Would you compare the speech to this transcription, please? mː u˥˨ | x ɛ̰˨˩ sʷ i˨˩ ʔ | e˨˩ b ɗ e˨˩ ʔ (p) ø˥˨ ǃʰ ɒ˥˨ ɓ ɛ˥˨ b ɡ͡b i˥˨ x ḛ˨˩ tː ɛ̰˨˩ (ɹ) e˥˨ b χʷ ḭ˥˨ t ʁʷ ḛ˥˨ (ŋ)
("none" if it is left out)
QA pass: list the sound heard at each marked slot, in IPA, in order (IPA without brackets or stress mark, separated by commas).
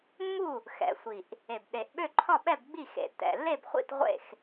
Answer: ɓ, lː, x